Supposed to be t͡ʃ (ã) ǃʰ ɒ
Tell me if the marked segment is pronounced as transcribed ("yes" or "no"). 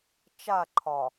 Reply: no